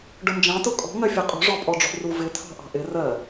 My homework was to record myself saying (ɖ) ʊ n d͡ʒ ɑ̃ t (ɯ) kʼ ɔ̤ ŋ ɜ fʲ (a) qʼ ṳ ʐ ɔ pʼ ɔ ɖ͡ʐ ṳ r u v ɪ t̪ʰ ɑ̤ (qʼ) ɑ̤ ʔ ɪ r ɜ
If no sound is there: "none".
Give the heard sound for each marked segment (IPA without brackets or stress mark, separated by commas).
ɖ, ʊ, ʌ, ʔ